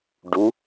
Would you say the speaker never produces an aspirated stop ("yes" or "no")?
yes